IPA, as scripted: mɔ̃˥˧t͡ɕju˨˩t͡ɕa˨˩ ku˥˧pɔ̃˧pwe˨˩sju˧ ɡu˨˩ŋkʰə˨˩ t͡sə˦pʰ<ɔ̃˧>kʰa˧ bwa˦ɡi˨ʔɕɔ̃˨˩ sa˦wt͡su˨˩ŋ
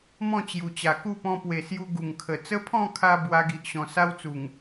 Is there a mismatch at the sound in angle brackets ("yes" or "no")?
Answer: yes